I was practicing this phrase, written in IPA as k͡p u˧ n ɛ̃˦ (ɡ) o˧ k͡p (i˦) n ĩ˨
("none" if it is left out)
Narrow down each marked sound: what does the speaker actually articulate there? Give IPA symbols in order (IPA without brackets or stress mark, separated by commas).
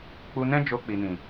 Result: d͡ʒ, i˨